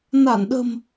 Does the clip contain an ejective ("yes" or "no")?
no